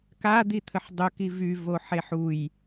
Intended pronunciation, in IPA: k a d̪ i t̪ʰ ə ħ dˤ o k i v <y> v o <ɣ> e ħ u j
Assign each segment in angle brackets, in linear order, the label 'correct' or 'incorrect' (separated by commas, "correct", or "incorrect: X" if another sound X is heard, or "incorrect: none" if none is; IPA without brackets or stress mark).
correct, incorrect: ħ